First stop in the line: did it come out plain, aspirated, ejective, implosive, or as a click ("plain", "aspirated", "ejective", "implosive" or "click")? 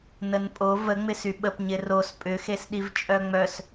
ejective